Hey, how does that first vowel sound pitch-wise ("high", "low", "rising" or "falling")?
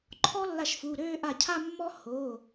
high